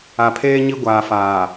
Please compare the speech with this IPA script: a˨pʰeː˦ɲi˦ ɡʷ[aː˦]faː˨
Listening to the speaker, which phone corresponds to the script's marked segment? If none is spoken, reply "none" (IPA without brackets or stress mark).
aː˨